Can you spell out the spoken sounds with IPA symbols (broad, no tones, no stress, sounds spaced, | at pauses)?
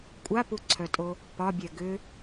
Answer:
kʷʼ a p u ǀʰ œ tʼ o | p ɒ bʲ ɛ ɡ ʏ